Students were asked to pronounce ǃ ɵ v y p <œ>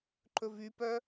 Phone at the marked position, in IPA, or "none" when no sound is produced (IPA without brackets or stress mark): œ